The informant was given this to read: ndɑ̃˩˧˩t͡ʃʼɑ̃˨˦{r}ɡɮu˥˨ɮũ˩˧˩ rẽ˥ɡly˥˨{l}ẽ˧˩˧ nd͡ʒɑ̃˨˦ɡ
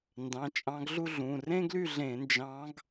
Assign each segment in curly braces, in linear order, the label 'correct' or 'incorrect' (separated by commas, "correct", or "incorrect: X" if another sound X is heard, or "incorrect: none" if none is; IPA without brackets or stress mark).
incorrect: none, incorrect: ɮ